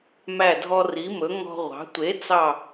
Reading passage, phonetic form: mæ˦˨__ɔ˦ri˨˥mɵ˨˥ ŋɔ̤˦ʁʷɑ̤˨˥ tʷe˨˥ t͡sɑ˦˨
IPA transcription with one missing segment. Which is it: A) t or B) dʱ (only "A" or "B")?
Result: B